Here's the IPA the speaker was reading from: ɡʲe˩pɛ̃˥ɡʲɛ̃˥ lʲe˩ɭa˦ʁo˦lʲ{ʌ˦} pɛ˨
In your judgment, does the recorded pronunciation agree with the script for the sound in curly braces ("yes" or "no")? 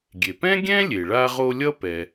no